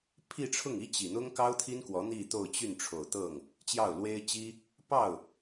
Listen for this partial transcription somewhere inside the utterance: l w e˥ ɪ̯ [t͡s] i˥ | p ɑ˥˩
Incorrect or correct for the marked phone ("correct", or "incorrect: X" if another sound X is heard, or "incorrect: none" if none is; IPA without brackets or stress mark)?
incorrect: t͡ɕ